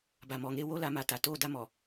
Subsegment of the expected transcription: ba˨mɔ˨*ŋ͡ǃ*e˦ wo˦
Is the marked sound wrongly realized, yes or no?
yes